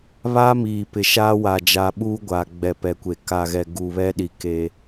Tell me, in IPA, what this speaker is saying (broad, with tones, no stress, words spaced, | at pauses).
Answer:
βaː˦miː˨ pɪ˨ʃaː˦ wa˨d͡ʒa˨ ɓuː˦ɡʷaː˨ ɡ͡bɛ˨pɛ˨kʷe˨ ka˨ɣɛ˨ ɡu˨βɛ˦ɗi˨ke˦